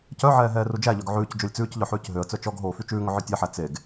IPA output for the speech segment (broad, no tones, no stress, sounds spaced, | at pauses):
c œ ʕ ɛː ɦ ɛː r u d͡ʒ æ ʎ œ ɡ ʕ ʉː c d͡ʒ o lʲ t͡s ʉː c ʎ œ ħ ʉː c ɦ ø ə̯ t͡s œ t͡ʃ ɔ ɡ ɦ oː f y t͡ʃ ʉː ŋ ɵ ʕ œ tʲ ɛ ħ æ t͡s e ɡ